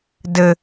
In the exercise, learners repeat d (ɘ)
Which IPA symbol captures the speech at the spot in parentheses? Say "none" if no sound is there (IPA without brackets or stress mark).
ɘ